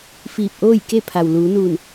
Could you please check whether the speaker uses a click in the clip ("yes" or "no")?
no